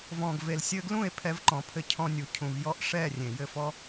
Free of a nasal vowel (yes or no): no